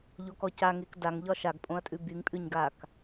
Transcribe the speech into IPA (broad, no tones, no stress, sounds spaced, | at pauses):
ʎ o k ɔ c a ŋ e k d a ŋ ʎ ɒ ʃ a ɡ pʼ õ ɐ̯ tʼ ʉ b y ŋ pʼ ʉ ɲ ɡ a k